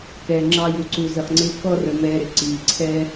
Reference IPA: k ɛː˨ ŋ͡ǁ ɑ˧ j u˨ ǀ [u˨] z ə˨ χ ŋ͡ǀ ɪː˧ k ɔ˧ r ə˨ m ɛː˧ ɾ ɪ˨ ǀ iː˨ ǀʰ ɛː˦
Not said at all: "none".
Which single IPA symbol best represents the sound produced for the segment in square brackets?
u˨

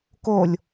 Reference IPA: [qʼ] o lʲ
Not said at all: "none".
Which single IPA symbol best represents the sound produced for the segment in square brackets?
k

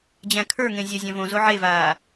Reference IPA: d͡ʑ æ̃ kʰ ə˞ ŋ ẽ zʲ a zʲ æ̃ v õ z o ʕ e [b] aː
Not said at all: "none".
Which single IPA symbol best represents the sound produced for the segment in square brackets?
v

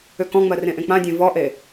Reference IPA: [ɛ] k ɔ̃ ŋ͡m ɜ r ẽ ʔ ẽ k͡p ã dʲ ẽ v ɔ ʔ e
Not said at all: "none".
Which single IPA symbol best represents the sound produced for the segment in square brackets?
ʏ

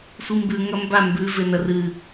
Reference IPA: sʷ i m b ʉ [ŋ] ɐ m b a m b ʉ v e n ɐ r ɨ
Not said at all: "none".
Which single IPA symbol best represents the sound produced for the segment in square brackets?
ŋ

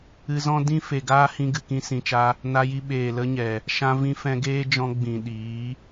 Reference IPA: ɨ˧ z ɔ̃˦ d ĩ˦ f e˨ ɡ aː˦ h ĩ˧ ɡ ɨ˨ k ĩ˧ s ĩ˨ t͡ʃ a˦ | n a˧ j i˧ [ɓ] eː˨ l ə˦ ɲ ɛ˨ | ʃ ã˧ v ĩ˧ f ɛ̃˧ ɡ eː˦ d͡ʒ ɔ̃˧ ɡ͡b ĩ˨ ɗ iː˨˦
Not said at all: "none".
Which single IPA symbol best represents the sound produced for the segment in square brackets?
ɓ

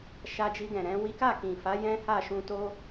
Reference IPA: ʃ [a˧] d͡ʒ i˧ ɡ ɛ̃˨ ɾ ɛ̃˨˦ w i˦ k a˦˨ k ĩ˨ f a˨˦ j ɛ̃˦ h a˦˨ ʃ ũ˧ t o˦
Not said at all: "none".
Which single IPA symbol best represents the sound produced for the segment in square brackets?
a˧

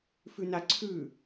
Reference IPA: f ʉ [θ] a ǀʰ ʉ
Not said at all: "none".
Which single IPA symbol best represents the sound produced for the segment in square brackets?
n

